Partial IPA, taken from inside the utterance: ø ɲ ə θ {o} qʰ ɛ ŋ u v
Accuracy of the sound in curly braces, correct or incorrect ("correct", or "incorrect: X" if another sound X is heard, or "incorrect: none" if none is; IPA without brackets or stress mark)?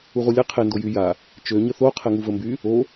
correct